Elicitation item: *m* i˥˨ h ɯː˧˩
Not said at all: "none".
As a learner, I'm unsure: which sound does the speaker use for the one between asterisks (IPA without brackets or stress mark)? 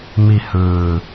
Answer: m